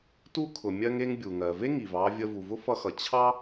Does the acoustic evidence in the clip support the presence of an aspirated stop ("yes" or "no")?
yes